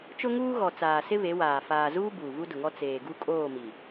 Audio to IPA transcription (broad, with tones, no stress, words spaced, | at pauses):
t͡ʃʊ˦ŋuː˦ɣɔ˨ t͡saː˨sɪ˦ βe˨˦waː˨ faː˨zuː˦ buː˨vu˦dʊ˨ŋɔ˦ t͡seː˨ɡu˦ kʼoː˦˨mi˨